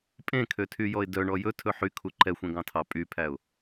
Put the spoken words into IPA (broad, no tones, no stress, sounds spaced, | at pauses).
pʼ ẽ kʰ ø tʰ y j ɔ ɪ̯ d œ ɳ ɔ j ɵ tʰ ɵ ħ y kʰ u ǃ ɛ xʷ ẽ ɡ ɑ̃ tʰ ɑ pʼ y pʰ æ ʊ̯